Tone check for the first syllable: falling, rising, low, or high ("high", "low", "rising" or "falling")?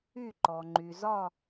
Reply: falling